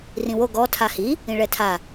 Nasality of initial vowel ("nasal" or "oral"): nasal